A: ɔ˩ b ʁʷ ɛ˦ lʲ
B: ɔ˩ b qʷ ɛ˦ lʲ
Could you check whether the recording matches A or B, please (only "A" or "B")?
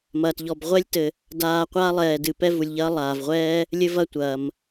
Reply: A